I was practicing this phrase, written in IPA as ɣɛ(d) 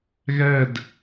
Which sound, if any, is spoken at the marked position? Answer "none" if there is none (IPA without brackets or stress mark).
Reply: d